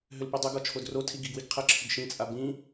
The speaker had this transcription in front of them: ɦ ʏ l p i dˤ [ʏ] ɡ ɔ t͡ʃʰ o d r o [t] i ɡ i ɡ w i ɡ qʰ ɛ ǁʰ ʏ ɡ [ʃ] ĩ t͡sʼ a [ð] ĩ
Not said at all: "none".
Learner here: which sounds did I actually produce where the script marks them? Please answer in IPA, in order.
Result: ʏ, tʰ, ʃ, b

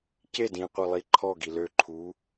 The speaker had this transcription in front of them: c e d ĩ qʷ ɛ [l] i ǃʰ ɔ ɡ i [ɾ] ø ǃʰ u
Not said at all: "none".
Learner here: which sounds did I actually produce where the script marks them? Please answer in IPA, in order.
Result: lˠ, l

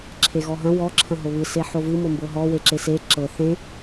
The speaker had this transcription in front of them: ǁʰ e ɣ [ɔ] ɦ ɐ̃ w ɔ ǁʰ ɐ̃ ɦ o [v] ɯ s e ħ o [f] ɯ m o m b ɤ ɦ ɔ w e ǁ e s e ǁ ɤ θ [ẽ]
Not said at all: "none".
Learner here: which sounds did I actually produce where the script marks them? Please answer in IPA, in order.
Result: ɔ, β, v, ẽ

